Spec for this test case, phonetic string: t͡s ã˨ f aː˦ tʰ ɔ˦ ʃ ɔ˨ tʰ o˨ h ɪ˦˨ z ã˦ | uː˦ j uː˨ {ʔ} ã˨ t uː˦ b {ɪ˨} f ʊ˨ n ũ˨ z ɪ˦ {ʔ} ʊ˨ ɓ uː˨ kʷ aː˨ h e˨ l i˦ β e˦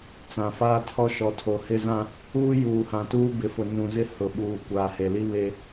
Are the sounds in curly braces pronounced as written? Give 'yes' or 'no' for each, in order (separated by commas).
no, yes, no